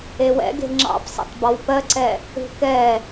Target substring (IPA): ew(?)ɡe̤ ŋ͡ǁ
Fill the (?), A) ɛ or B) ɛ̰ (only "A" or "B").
B